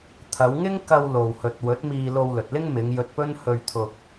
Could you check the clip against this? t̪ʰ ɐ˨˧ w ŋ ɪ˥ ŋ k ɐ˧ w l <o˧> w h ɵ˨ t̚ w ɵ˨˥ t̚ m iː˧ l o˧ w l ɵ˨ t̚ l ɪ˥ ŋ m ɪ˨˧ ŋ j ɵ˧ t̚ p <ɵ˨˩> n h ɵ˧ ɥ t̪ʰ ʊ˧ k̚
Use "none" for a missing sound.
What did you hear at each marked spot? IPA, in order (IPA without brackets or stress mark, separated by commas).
o˨, ɵ˥